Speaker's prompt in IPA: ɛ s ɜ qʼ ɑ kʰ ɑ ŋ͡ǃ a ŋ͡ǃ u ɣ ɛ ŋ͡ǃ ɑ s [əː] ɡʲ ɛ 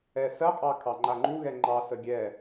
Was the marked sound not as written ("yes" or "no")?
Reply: yes